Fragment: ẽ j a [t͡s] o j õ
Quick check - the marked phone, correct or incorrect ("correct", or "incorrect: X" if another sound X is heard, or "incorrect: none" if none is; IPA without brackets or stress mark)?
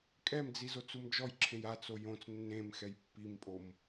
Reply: correct